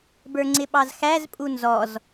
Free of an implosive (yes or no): no